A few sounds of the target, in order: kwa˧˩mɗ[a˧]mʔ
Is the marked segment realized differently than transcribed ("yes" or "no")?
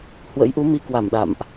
yes